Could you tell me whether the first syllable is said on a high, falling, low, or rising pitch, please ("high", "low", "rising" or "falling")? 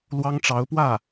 high